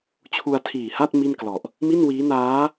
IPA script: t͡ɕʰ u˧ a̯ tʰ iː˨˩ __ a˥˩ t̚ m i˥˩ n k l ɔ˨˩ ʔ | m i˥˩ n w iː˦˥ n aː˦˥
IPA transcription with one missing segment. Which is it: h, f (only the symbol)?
h